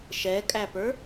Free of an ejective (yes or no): no